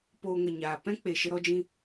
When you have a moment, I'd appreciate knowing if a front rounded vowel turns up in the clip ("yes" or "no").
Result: no